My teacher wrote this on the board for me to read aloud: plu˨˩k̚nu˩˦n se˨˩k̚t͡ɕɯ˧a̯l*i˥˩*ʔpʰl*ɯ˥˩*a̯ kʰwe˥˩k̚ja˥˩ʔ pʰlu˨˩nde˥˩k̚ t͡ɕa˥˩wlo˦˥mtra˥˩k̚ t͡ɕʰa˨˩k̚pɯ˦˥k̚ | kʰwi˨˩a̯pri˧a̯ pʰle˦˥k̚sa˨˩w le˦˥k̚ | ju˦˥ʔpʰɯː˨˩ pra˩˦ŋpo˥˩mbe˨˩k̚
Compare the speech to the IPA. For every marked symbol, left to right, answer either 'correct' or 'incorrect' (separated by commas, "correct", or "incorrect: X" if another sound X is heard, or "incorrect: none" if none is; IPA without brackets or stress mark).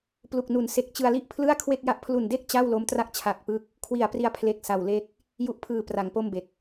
correct, correct